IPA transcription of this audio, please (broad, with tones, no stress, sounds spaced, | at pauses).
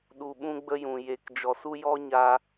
ɗ u˧ ɓ ũ˦ ɡ͡b ə˦ j ũ˨ j e˨ k d͡ʒ ɔ˨ s u˦ j ɔ˦ ɲ a˧